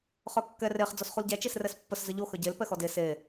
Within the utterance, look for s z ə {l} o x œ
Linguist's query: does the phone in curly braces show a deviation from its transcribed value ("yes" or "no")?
yes